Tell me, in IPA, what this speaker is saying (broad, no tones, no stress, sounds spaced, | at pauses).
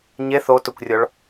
ɲ e θ o t ʊ kʷ rʲ ɔ ɭ